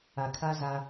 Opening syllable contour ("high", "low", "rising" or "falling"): low